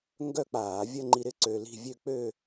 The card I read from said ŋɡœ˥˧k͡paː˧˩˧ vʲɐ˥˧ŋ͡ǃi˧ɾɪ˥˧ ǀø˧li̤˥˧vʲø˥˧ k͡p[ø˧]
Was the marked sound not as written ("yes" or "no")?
yes